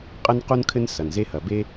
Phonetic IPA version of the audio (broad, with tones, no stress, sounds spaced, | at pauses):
qʼ ɘ˦ n q u˦ n kʰ ɘ˦ n s ɐ˨ n z e˧ h ɐ˨ b e˧